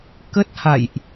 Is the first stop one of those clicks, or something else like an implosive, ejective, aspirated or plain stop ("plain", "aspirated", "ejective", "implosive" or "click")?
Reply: plain